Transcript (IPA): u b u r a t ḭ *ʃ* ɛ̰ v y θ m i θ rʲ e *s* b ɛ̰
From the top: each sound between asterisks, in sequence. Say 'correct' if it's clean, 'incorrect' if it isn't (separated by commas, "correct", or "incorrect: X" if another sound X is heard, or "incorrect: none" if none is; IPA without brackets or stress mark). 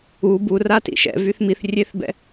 correct, incorrect: θ